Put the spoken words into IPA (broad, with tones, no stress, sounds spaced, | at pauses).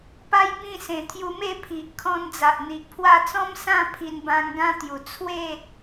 p a˦ j b ĩ˥˧ s ẽ˨˩ t̪ʰ j u˧ m e˥˧ pʰ i˨ ʔ kʰ ɔ̃˧ n d͡z a˨ ʔ n̪ i˨ ʔ pʰ w a˥˧ t͡s ɔ̃˦ m s ã˥˧ pʰ i˧ n b ã˧ ŋ ɡ ã˦ t̪ j u˨˩ t͡sʰ w e˥˧